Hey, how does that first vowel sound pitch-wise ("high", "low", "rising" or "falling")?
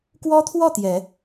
high